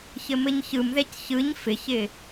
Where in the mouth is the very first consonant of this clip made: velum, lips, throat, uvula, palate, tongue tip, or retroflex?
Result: palate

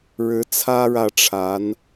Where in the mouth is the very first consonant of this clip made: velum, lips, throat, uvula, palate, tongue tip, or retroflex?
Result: retroflex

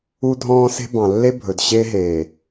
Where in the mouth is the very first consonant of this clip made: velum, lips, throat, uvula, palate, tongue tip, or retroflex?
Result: tongue tip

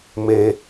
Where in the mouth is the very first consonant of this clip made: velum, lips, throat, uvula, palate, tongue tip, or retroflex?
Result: lips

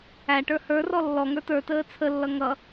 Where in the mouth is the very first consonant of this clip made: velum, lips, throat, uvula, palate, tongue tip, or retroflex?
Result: retroflex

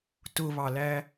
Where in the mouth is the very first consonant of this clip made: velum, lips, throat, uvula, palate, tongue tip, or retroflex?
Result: tongue tip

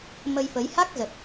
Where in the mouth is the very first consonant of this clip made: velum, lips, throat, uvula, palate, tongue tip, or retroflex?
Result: lips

